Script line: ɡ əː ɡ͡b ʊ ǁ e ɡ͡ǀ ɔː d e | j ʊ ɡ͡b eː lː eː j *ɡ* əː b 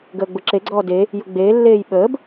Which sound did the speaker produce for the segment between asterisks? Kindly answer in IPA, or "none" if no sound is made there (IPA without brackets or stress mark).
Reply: ɓ